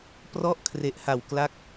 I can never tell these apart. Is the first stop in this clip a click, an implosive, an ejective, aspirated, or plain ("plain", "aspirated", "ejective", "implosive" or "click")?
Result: plain